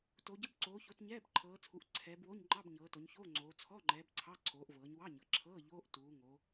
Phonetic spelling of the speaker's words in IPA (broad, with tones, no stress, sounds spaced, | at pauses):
t o˩˧ ɟ ə˧˥˧ b ǀ oː˩˧ ç o˩˧ t ɲ ɛː˧˥˧ b ǃʰ ɤː˩˧ t͡sʰ u˩˧ ʔ ǀʰ ɛː˩˧ b w o˧˥˧ ɲ ŋ͡ǃ ɑ˧˥˧ b ɲ ɤː˩˧ t o˩˧ ɲ ç oː˧˥˧ ŋ͡ǀ oː˩˧ t͡sʰ ɔ˧˥˧ ŋ͡ǃ ɛː˩˧ b ǀʰ ɑ˧˥˧ ǀʰ oː˩˧ ʔ v ɤː˩˧ ɲ w ɑ˧˥˧ ɲ ɤ˩˧ ǁʰ ɤː˧˥˧ ʎ oː˧˥˧ ʔ t uː˩˧ ŋ o˩˧